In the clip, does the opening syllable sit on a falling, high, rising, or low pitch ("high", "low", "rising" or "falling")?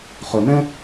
low